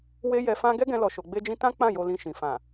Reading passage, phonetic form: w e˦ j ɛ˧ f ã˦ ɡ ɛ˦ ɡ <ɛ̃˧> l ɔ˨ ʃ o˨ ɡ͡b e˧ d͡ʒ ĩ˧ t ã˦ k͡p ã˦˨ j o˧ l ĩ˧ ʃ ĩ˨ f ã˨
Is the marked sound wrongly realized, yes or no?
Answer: no